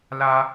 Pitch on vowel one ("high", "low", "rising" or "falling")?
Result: high